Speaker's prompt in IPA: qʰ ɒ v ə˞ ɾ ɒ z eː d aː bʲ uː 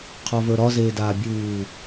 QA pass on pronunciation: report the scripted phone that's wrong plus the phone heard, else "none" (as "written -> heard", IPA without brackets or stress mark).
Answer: none